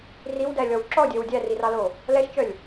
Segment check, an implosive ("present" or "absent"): absent